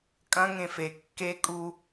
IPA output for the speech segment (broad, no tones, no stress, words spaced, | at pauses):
kʼɐ̃ ŋẽfe kːe kʼu